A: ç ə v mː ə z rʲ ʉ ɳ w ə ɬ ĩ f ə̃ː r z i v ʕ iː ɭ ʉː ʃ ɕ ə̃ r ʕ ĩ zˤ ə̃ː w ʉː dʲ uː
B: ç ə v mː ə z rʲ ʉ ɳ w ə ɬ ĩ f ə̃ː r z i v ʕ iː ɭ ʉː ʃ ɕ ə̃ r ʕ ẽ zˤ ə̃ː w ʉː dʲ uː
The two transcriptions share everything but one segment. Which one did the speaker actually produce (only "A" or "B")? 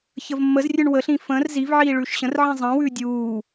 A